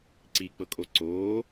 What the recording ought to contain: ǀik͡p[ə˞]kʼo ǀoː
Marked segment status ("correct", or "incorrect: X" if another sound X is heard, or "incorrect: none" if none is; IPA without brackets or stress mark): incorrect: ɤ